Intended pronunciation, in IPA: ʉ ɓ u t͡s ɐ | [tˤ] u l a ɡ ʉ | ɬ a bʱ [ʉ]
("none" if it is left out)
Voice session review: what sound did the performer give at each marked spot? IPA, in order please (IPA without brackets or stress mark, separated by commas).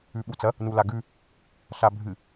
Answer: n, ɨ